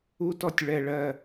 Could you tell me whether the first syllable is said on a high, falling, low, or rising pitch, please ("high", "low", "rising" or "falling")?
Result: high